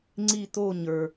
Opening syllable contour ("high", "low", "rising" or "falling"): falling